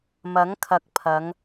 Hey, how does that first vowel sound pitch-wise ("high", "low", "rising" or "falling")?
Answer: rising